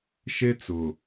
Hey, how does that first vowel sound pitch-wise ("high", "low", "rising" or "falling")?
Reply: high